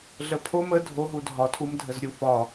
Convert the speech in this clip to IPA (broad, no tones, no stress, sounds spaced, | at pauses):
ɮ ə pʰ o m ə dʱ o ɦ u dʱ ɒ tʰ u m dʱ ə z ɾʲ u f ɒ